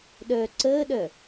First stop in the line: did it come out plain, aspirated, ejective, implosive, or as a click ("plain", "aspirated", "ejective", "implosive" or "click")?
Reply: implosive